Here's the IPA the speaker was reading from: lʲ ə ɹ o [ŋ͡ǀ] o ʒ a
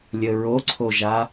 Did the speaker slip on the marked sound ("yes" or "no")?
yes